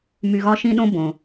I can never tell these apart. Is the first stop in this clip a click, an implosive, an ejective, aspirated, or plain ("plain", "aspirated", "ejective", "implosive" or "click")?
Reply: implosive